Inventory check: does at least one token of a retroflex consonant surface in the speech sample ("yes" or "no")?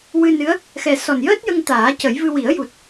no